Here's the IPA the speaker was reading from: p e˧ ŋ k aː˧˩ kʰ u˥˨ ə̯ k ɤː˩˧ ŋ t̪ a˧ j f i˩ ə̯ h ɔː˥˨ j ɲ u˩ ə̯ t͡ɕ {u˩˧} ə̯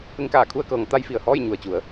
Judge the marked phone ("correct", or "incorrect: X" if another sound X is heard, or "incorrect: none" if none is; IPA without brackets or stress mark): correct